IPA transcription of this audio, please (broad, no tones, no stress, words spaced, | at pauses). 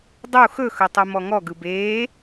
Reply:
dˤu xɵxɵ tˤumɔŋɔɡɯb eː